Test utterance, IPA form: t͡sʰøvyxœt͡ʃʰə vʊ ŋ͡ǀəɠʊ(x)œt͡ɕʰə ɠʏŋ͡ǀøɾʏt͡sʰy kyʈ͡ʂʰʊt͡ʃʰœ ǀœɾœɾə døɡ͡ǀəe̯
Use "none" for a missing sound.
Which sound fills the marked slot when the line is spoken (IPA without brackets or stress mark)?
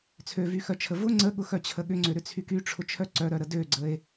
x